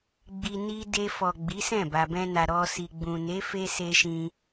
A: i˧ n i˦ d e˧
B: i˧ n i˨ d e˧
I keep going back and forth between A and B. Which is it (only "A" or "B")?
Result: A